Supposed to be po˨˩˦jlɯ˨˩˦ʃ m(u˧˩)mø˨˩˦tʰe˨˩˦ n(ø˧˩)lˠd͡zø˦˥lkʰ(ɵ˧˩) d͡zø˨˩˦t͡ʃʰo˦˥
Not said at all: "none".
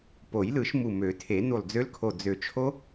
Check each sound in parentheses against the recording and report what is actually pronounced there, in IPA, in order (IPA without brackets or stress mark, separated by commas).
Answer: u˧˩, u˧˩, o˧˩